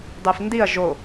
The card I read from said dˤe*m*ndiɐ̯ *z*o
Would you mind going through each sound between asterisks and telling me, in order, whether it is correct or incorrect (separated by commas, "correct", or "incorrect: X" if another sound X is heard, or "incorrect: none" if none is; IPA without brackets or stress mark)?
incorrect: f, incorrect: ʒ